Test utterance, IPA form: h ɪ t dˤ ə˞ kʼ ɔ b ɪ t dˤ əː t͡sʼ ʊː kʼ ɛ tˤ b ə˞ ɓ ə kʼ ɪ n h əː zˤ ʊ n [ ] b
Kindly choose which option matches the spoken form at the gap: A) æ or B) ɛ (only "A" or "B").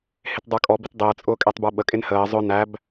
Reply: A